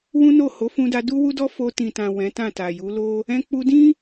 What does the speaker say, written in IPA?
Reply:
w ũ˦ n o˦˨ h o˨˦ f ũ˧ d a˧ d u˦ w u˦ d ɔ˦ f o˧ t ĩ˨ t ã˨ w ɛ̃˨˦ t ã˦˨ t a˨ j u˨˦ l o˦ | ɛ̃˧ k͡p u˧ d ĩ˦

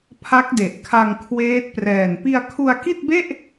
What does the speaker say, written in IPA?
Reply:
pʰ a˦˥ k̚ d e˨˩ ʔ kʰ a˧ ŋ kʰ w eː˦˥ t̚ p r ɛː˨˩ n p i˧ a̯ kʰ u˧ a̯ k i˥˩ t̚ b e˥˩ ʔ

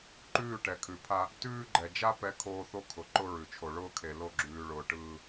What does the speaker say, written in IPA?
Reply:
ǃ ʉː˦˨ ʈ ɛ˨ kʰ ʉ˨ pʰ a˦ | t ʉː˦ ɡ͡ǃ ɛ˨ d͡ʒ a˦ p ɛ˦ kʰ oː˦ θ o˦ kʰ ʊ˨ ǃ ʊ˦ ɹ ʉ˨ t͡ʃʰ o˨ ɭ ʊː˦ kʰ e˨ l o˦˨ ɡ͡ǁ ʉː˨ ɭ ʊː˨ ʈ ɯː˦

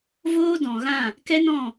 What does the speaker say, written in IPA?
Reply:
v oː˦ d ɔ̃˨ ɣ ã˦˨ | k ɛ˦ n ɔ̃˦˨

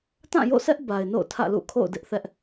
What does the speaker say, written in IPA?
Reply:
t ã˦˨ j o̰˦˨ sʰ ɛ˦ ʔ b a˨ ɪ̯ n o̰˦˨ ʊ̯ tʰ ä̰˦˨ l ṵ˦˨ kʰ o̰˦˨ ʊ̯ d ɪ˦ ʔ θ ɛ˦ ʔ

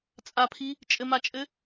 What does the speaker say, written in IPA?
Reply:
t͡sʼ a pʰ i | t͡ʃʼ ɘ m a t͡ʃʼ ɘ

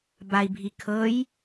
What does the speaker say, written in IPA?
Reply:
b a i̯ bʱ i kʰ ɤ j

